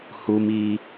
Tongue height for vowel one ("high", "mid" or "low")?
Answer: high